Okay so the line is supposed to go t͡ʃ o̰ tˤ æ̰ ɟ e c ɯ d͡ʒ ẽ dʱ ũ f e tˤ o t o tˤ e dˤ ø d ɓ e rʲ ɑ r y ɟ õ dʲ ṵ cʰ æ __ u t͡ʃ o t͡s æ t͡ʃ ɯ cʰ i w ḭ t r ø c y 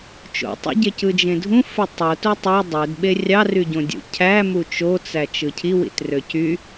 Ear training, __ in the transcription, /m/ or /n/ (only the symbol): m